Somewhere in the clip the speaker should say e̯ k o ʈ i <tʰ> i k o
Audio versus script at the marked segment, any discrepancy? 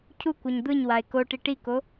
yes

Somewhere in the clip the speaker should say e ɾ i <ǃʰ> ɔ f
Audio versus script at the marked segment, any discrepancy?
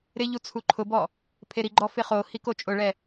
yes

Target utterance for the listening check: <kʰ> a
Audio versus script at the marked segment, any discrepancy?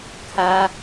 no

